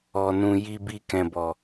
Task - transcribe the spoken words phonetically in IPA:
ɔ˧ n ũ˧ j i˧ b i˧ k ɛ̃˨ b ɔ˨

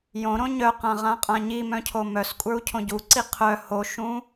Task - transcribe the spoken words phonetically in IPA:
j õ ɾ õ ɲ œ q ã ʁ ã qʼ ã ɲ i m œ̃ cʰ o m œ s kʷʼ ə˞ u̯ cʰ õ ɟ u ǀ i qʰ œ h o ʃ ũ

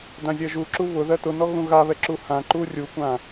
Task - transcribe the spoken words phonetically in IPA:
d ã zʲ ɜ ʒ u ǁ u β ʊ ð ɜ t ʊ n ɔ ɣ ũ ɣ a β ɛ ǁ u h ã ǃ u rʲ u kʷ ã

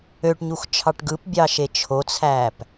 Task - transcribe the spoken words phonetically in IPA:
ø ʈ ɲ u x t͡ʃʰ ɑ ʈ ɡ ɯ p bʲ ɑ ʃ e t͡ʃʰ o t͡sʰ æ p

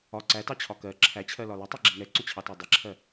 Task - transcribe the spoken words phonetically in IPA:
ɒ ǀ æ t ɑ t͡ɕʰ ɒ k ɜ ǁʰ æ t͡ɕʰ ɜ l ɒ l ʊ tˤ ɜ ɡ͡ǁ i ŋ ɛ ǀ ʊ t͡ɕʰ ɑ t æ dˤ i ǁʰ ɜ

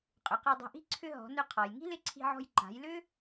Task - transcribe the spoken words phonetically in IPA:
qʼ ʏ˩˧ q ɛ˧ dˤ i̤˧ ʔ i̤˥ ǀʰ ʏ˧ ɦ ɔ̤˩˧ n ʏ˧ qʰ ɔ˩ j ŋ i̤˥ l ɪ˧˥ ǀʰ i̤˧ ʕ ɔ̤˧ j ǃ a̤˩˧ j l ʏ˥

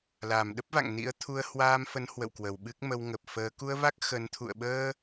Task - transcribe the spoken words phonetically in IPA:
l aː˧˩ m ɗ ə˦˥ p̚ v a̰˧˨ ŋ n ḭ˧˥ ə̯ t̪ʰ u˧ ə̯ h w aː˧ m f ə˨˦ n h w ə̰˧˨ w k w ə˧˩ w ɓ ɨ˦˥ k̚ m ə˧ w ŋ ə˨˩ p̚ f əː˨˦ k u˧ ə̯ v a˦˥ k̚ x ə˨˦ n t̪ʰ ṵ˧˨ ə̯ ɓ əː˧

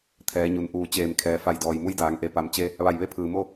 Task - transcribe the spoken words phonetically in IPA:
t̪ʰ ɛː˩˧ ɲ u˩ n ʔ uː˧˩ t͡ɕ eː˧˩ m kʰ ɛː˩˧ f a˧˩ j d ɔː˩ j m u˧˥ j d aː˩˧ ŋ ʔ e˩˧ p a˩ m t͡ɕ e˧ | ʋ a˧˩ j ʋ e˧˥ pʰ ɯː˩ m o˥˨

